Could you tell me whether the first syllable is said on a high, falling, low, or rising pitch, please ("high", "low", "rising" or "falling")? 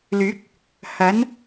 rising